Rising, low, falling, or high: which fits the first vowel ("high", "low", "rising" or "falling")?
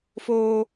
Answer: low